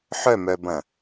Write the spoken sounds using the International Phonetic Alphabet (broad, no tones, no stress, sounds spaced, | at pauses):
ħ œ m œ b ɐ̃